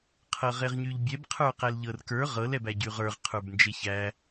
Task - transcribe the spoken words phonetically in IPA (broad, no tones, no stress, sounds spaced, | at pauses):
qʰ ɤ ʁ e ʁ ɲ y ʎ bʲ ɛ b qʰ ə˞ q æ l ʎ ɤ r k ə˞ ʁ ɤ l ɛ b æ ɟ y ʁ ə˞ ʁ qʰ ə˞ b n d͡ʒ e ç æ